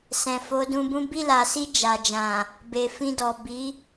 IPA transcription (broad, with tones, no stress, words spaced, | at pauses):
sɛ̃˨fo˨˦dũ˧bũ˦ bi˦˨la˨si˧ d͡ʒa˨d͡ʒã˨ | be˨fĩ˧ dɔ˨bi˨˦